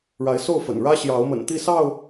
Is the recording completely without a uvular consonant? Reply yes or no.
yes